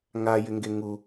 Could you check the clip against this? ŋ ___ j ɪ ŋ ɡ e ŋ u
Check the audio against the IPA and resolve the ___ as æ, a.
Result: a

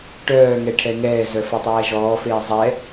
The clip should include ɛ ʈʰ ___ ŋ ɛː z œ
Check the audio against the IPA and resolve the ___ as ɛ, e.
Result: ɛ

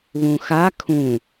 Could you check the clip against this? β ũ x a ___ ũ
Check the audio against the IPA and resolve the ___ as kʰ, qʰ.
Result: kʰ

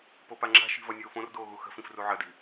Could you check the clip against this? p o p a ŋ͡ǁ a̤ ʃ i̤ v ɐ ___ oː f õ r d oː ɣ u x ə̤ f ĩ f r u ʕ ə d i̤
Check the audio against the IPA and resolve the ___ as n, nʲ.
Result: nʲ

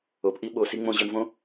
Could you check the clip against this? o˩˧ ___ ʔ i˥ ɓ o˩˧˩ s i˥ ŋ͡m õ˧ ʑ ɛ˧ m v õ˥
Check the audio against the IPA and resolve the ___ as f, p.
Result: p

